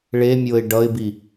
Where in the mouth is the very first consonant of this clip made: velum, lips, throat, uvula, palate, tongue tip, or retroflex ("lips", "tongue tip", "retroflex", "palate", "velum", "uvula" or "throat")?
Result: retroflex